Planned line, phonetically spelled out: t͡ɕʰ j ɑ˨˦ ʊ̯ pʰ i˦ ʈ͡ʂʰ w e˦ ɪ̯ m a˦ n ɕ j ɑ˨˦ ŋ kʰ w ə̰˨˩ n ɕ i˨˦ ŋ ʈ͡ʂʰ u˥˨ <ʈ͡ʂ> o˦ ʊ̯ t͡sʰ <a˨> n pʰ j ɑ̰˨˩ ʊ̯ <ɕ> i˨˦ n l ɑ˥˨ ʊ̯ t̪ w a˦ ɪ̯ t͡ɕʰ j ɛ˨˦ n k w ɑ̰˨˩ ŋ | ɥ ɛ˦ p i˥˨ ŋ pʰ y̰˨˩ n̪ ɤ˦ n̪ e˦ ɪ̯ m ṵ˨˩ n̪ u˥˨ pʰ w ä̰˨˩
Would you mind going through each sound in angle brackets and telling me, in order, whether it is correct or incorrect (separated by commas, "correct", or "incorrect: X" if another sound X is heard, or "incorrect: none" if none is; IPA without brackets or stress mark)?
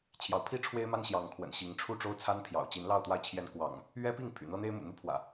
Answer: correct, incorrect: a˦, incorrect: t͡ɕ